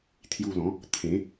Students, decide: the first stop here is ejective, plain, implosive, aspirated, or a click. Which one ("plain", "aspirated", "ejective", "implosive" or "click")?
aspirated